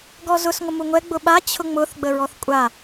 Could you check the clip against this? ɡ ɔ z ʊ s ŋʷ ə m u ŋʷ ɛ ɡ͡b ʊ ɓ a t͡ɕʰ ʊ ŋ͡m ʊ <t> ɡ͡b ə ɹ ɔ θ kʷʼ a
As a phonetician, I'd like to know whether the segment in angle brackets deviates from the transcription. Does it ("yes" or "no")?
yes